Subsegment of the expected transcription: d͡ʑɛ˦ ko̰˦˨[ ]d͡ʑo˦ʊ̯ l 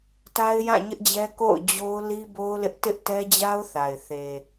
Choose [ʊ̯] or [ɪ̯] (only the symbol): ʊ̯